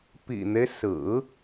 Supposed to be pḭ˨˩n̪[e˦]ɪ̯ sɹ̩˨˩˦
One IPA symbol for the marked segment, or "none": e˦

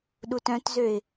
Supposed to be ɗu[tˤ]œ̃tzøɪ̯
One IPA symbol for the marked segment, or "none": t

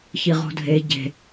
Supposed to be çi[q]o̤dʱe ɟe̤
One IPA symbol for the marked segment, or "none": ʁ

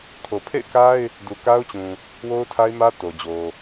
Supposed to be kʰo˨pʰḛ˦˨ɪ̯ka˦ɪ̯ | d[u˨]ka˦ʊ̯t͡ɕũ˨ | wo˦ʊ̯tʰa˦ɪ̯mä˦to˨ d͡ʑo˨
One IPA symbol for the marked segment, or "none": u˨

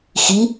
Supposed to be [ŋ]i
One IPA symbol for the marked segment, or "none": x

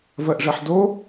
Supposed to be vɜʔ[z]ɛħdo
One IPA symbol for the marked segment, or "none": ʐ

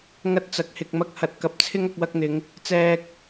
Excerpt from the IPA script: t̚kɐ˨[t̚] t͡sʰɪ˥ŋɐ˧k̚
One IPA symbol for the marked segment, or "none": p̚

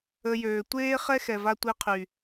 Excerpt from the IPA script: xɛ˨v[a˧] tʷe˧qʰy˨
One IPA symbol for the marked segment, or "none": a˧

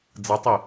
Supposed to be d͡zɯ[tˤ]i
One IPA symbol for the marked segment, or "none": tˤ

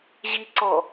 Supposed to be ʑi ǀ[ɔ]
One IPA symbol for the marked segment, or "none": ɔ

